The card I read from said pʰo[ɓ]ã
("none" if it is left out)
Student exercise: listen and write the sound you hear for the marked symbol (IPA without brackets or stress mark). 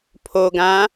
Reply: ɡ